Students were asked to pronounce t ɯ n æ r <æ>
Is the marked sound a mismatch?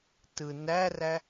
no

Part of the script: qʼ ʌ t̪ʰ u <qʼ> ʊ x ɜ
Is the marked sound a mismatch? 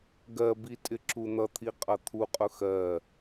no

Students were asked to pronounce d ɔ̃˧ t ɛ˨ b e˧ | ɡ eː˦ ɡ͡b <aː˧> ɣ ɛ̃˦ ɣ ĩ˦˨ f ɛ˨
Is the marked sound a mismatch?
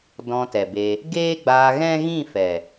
no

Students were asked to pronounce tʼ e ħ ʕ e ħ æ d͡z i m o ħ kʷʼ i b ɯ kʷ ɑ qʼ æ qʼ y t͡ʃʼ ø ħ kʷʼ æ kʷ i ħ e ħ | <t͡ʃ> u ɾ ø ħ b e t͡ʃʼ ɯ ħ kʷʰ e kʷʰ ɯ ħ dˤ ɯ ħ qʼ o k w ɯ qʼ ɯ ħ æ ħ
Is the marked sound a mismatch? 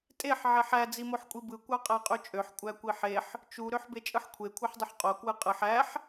no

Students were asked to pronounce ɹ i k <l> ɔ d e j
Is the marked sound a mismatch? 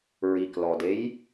no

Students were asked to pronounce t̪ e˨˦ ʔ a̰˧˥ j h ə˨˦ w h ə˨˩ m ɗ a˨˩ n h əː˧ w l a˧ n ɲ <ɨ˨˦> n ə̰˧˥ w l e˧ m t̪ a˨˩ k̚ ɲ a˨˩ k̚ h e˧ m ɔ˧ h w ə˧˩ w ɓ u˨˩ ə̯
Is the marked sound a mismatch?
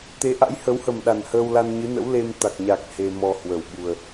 no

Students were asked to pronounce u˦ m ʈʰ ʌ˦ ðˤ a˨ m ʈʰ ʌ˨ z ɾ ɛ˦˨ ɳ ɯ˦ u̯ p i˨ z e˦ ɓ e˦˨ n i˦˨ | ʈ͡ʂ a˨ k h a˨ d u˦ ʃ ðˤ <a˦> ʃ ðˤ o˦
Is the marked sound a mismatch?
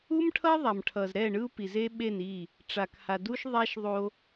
no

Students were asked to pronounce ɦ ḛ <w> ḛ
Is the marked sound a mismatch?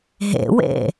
no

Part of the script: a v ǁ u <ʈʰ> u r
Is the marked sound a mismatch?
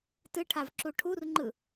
no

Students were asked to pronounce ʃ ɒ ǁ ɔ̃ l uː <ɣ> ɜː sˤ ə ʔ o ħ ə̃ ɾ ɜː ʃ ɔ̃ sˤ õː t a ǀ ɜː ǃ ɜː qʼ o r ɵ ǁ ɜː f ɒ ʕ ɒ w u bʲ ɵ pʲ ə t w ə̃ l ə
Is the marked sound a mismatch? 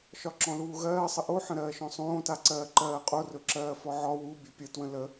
no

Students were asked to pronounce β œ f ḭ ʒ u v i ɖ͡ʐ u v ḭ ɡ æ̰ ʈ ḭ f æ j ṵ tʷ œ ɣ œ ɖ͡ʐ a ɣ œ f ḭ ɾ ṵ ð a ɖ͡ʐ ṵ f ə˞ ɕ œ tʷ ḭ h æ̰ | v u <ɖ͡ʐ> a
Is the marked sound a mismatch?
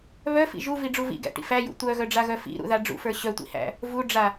no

